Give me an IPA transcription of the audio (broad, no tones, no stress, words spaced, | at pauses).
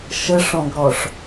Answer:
ʃəʂɔ̃ɡɾɔʂ